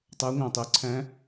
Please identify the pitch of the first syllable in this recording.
rising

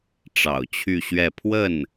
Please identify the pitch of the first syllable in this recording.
low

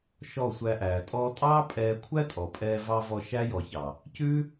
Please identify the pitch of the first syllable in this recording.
falling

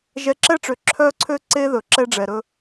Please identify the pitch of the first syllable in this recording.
rising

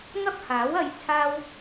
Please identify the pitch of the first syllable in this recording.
high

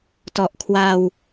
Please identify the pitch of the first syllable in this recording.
low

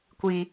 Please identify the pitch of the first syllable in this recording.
high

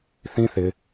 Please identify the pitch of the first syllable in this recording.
high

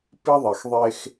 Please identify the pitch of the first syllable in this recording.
high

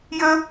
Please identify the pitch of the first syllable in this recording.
high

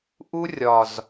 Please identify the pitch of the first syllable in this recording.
high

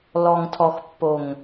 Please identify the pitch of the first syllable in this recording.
low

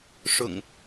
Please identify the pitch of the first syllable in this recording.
low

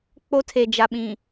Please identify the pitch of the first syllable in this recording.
high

